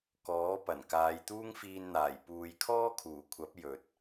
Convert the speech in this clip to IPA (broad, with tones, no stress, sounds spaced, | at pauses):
k ɔː˨˥ p ɐ˨˩ n k aː˨˧ j t̪ uː˥ ŋ f iː˧ n n̪ aː˨˩ j p uː˨ j kʰ ɔː˥ kʰ uː˨˩ kʷʰ ɐ˨˥ p̚ j ɵ˨ t̚